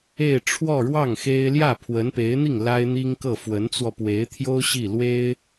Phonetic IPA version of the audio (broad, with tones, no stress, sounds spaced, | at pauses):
e˥˧ ɪ̯ ʈ͡ʂʰ w ɔ˥˧ ɻ w ɑ˥˩ ŋ x e˥ ɪ̯ l j ä˥˩ pʰ w ə˧˥ n p e˧˥ ɪ̯ n̪ i˥˩ ŋ l a˥ ɪ̯ n̪ i˥ ŋ k ɤ˥˩ f w ə˧˥ n t͡s w ɔ˧ p w e˧˥ ɪ̯ t̪ʰ j o˥ ʊ̯ ɕ i˥˩ l w e˥ ɪ̯